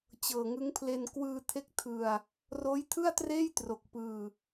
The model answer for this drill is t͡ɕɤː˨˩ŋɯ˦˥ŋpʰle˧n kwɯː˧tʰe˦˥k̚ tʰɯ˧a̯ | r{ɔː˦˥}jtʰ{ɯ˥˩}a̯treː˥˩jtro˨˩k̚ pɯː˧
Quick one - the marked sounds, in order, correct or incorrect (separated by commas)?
incorrect, correct